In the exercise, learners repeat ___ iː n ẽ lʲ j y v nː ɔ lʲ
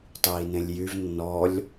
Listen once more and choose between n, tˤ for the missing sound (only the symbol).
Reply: tˤ